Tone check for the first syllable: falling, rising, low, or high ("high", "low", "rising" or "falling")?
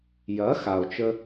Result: rising